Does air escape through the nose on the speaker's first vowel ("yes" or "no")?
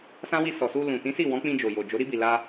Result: yes